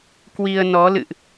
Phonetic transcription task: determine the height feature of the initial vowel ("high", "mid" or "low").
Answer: high